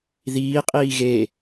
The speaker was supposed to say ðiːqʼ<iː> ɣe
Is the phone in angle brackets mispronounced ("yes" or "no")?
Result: no